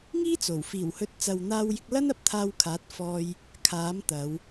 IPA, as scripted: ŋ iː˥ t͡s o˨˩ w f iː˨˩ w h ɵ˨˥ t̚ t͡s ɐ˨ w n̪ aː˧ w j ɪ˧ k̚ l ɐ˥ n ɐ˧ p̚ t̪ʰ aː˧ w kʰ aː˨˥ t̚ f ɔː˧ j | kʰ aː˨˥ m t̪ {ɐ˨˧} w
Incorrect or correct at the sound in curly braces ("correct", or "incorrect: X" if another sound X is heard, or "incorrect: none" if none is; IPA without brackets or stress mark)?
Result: correct